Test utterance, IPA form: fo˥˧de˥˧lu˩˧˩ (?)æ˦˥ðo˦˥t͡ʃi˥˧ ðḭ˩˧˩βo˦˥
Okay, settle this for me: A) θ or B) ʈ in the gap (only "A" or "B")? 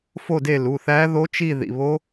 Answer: A